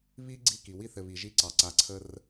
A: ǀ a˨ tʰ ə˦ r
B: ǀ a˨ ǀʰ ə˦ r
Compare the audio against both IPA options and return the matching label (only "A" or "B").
B